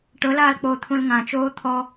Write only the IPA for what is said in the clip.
ʈɤlaːlk͡poː t̪ʰũlŋãt͡ʃoː t̪ʰɔ

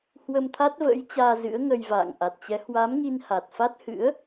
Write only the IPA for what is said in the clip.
hwə˧mt̪ʰa˦˥t̚və̰ː˧˥jt͡ɕaː˧ zɨ̰˧˥ə̯ŋə˧jva̰ː˧˨ŋ ʔa˨˩t̚t͡ɕɛ˨˦ hwa˨˦mŋi˧n ha˨˩t̚fa˦˥t̚ hɨ̰˧˥ə̯

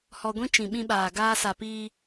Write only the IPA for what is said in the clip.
hɔ˧ɡʷĩ˦ t͡ʃĩ˨ɓĩ˧ɓaː˨ ɡaː˧sa˨piː˧

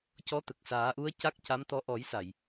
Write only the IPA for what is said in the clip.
cɔ˧˥t̪ə˨˩k̚saː˨˩˦ʔu˧˥ə̯ ca˦˥k̚ca˧˥mt̪ɔ˧˥ ʔɔ˨˩˦jsa˨˩˨j

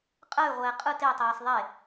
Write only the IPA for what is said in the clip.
qʼəːy̯ʁʷɛː qʼɯ tei̯tˤeːs ðˤe

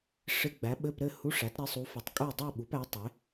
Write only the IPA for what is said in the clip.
ʂɪ˧˥˧ ɡ͡bæ˩˥ɓɘ˧˥˧p ɾɘ˥˨hu˧˥˧ʂæ˩˥t ɾɪ˩˥sˤu˩˥f ɘ˩˥tˤkʼu˥˨ dˤu˥˨ɓu˩˥pæ˩˥ tˤɪ˩˥

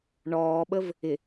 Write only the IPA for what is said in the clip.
ɳɔːɓəv | ɪ

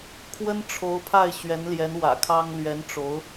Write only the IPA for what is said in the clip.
kʰwə˥nʈ͡ʂʰo˧˥ʊ̯pʰa˥˩ɪ̯ ɕɥɛ˧˥nljɛ˧˥nwä̰˨˩ kʰɑ˥ŋ lɥɛ˧˥nʈ͡ʂo˧˥ʊ̯

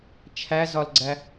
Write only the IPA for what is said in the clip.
t͡ʃʰæzɒlɡ͡ǀæ

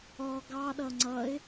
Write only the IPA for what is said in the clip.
ɔɡ ɑɗʌ ŋ͡ǀʌɪ̯

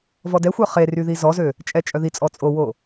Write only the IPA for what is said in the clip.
vɔdɛxʷœ χery ðizɔzø | t͡ʃʼɛt͡ʃʼœðit͡sʼɔ t͡sʼowo

